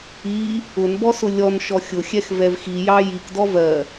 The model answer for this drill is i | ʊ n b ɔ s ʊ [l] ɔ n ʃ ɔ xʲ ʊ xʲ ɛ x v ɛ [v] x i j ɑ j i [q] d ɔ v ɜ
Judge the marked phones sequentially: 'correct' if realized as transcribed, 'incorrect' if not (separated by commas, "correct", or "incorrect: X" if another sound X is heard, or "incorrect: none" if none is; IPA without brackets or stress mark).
incorrect: lʲ, correct, incorrect: k